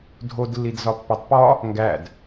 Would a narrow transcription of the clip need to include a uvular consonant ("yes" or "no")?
no